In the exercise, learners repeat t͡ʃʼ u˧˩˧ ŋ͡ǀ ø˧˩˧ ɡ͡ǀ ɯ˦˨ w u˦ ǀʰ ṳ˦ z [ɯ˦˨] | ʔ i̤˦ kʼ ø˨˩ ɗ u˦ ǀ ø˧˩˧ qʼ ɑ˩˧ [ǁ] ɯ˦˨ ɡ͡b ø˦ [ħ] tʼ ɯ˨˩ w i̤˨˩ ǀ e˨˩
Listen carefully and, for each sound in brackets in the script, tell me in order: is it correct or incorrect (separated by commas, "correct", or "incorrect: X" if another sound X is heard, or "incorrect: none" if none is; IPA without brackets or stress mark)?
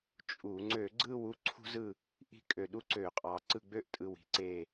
correct, incorrect: ǀ, incorrect: ʔ